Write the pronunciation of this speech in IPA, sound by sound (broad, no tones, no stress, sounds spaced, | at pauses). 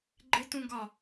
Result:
ɡ͡ǃ ɪ t ũ ɡ ɒ